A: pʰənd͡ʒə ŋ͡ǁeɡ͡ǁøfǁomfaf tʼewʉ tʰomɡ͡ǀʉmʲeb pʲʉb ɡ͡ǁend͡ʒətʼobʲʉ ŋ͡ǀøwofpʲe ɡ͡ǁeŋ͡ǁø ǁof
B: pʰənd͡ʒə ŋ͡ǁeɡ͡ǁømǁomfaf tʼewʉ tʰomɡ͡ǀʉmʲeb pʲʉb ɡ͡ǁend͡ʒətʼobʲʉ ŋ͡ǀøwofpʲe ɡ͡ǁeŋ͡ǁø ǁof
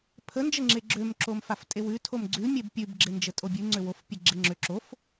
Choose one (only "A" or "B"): B